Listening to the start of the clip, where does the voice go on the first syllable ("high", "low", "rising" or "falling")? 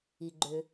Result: low